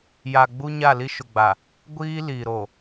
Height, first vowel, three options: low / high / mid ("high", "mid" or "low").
low